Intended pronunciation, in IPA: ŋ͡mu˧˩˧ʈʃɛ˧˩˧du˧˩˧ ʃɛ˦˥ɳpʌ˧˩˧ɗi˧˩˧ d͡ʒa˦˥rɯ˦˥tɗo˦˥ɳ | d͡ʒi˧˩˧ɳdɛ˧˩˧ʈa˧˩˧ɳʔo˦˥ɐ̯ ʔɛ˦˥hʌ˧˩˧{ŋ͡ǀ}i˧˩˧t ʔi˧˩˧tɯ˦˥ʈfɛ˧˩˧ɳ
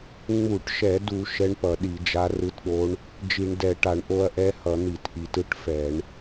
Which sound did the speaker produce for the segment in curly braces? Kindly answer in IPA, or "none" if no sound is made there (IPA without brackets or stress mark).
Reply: n̪